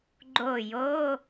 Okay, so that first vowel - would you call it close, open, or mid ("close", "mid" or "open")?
mid